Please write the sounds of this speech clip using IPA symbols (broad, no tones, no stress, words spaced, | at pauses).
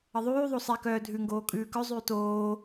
əðˤʉːðˤo sˤɛkœː dʱʉŋɡoː kʼʉːkœzˤʉː toː